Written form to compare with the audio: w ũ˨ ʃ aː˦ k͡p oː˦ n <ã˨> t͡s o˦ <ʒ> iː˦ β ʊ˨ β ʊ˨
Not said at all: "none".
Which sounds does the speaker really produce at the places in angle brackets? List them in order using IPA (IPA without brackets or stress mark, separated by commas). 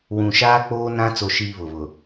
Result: ã˦, ʃ